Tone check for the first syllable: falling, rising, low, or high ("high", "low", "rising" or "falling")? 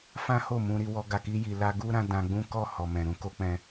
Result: high